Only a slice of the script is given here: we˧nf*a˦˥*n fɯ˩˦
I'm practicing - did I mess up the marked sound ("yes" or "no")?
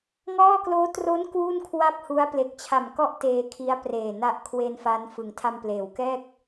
no